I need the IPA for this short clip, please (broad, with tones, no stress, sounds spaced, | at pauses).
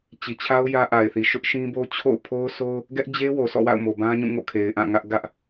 t͡ɕ i˨ t͡ɕʰ a˦ ʊ̯ j ä˦ ʔ a˨ ɪ̯ θ i˨ ʃ ʊ˦ ʔ ʃ ĩ˦ b o˦ t͡ɕʰ o̰˦˨ ʊ̯ pʰ o˦ ʊ̯ s o˦ ʊ̯ | ɡ ɛ˦ ʔ d͡ʑ e˦ w o˨ sʰ ɔ̰˦˨ w a̰˦˨ ʊ̯ m o˨ b ã˦ ɲ ũ˦˨ ŋ o̰˦˨ kʰ e˨ ɪ̯ ʔ ã˦˨ ŋ ä˦ ʔ ɡ ä˦ ʔ